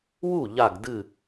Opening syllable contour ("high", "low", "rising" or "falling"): falling